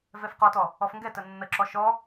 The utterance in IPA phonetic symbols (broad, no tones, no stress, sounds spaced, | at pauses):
v ɛ f q ɔ t ɔ | ɔ f ŋ ɡ ɛ t ə nː ə ǁ ɔ ʃ ɔ